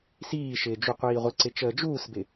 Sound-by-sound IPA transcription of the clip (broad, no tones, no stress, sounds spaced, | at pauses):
s iː ʃ ɪː d͡ʒ u qʷ iː ʁʷ ɪ ǀ ɪ t͡ʃ əː d͡ʒ uː s b ɪ